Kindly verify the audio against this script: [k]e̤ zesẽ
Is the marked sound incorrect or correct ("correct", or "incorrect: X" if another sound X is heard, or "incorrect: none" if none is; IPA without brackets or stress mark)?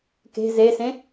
correct